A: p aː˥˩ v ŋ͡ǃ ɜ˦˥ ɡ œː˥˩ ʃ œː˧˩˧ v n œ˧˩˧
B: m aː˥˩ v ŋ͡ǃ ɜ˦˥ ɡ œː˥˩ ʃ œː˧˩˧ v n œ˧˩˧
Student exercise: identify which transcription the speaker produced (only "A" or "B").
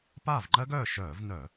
A